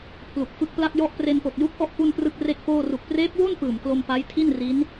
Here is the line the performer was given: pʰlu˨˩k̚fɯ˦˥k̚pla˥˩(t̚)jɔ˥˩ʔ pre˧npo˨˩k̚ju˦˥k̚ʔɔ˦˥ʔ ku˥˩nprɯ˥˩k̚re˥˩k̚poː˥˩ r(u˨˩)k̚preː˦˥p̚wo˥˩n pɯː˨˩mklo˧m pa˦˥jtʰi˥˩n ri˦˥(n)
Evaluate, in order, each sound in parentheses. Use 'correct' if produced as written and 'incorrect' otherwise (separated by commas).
incorrect, correct, correct